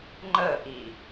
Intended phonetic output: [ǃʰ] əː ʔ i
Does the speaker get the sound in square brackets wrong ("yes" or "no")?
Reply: yes